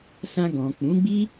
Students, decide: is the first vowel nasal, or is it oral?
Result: nasal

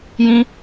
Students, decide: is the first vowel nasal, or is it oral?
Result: nasal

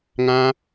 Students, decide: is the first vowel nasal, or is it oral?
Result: nasal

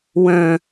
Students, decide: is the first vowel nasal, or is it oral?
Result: nasal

